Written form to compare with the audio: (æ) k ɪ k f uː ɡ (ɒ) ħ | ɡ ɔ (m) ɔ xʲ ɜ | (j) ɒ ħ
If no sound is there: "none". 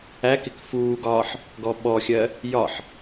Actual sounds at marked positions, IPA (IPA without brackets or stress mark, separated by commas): æ, ɒː, ɓ, j